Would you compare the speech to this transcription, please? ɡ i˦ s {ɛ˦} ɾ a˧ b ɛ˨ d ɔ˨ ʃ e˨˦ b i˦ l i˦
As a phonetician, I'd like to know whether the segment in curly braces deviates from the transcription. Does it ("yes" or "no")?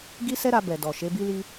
no